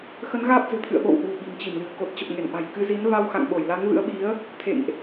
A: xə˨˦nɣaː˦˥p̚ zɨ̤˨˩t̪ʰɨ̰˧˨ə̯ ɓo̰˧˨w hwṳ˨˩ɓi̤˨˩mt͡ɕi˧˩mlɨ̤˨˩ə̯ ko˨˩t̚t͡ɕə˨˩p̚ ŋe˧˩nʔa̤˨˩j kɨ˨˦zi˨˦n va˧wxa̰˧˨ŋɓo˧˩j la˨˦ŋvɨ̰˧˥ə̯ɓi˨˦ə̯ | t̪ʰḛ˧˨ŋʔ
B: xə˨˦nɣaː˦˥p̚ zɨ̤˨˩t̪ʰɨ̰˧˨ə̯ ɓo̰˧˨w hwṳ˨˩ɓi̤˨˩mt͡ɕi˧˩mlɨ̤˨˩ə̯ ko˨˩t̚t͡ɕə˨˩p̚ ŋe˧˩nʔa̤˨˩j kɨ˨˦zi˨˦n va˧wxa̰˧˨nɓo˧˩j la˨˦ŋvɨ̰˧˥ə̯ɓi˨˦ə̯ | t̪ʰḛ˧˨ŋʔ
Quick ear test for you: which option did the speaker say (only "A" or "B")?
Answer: A